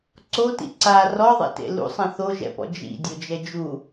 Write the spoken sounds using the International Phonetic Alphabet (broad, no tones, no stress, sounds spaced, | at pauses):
ǀ o t ḭ ǀ a r ɔ ðˤ ḭ t ḛ l ṵ sˤ ɛ̃ θ o ʒ ɛ̰ p ɔ̰ d͡ʒ ḭ dʲ o d͡ʒ ɛ d͡ʒ u